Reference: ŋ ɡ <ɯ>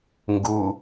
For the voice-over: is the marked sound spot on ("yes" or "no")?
no